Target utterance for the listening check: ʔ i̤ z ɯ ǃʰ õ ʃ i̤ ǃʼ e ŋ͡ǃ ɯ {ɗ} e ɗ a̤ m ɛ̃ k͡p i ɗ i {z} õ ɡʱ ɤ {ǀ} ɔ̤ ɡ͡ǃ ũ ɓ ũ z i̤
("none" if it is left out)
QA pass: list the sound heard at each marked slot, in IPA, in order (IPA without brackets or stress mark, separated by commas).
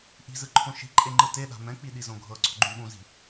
t, z, ǀ